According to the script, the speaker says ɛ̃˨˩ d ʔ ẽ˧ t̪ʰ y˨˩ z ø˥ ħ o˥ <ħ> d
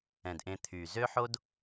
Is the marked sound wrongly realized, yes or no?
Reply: yes